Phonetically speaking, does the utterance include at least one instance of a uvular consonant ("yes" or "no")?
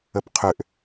yes